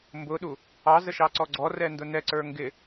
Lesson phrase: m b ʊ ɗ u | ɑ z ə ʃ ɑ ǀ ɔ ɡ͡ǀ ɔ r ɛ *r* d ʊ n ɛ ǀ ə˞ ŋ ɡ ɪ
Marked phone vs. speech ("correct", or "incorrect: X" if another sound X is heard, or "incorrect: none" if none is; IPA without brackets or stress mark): incorrect: n